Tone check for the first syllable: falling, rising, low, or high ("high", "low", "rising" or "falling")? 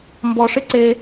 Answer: low